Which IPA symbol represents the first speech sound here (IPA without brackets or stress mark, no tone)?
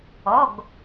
ɔ